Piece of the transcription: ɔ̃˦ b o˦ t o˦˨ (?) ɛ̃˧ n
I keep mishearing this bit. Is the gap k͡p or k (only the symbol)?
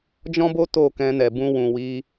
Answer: k